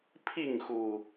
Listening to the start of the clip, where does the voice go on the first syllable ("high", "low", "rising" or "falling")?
falling